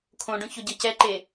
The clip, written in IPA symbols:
kʰ õ ɖ õ ç o ɟ ɤ c ɛ ǃ e

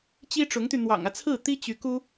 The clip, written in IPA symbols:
t͡ɕ i˥ ʈ͡ʂ ʊ˧˥ ŋ t̪ y˧ n̪ w ɑ̰˨˩ ŋ ä˦ t͡sʰ ɹ̩˥˩ t̪ i˥ t͡ɕ y˧˥ k u˥

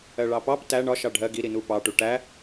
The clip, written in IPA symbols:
ɜ ɭ ɑ p ɑ p t æ ɳ ɒ ʃ ɑ ɖʱ ɜ ɡ i ɾ i n u p ɑ ʈ u ʈ æ

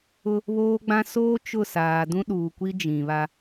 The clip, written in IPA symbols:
ʊ˦ | β oː˦ ɡ͡b ã˦ s oː˦ t͡ʃ ʊ˦˨ s aː˨ d ũ˦ ɗ uː˨ kʷ i˦ d͡ʒ ĩ˨ β a˦

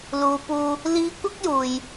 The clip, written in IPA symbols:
l uː˨˧ p uː˧ | l iː˨˧ kʷ ɐ˥ k̚ j uː˨ j

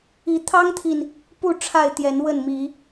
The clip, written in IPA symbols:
i˨˦ t̪ʰ ɑ˦ ŋ t̪ʰ i˨ n | p u˥˨ ʈ͡ʂʰ a˥˨ ɪ̯ t̪ j ɛ˨˦ n w ə˥˨ n m i˨˦

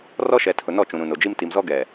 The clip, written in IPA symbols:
r ɔ˦ ʃ ɛ˨ tʰ ʊ˨ n ɔ˦˨ t͡ʃ ũ˨ ɾ ũ˨ n o˨ d͡ʒ i˦ m t i˨ m z ɔ˦ ɡ ɛ˨

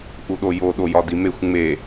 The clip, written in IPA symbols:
ʔ u ɗ o j o ɗ o j ɒ d i m e xʷ ŋ͡m e

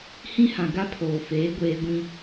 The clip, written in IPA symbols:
h ĩ˦ h ã˨ ɡ a˦ pʰ oː˨ f eː˨˦ ɡʷ eː˦ ɡʷ ĩ˦

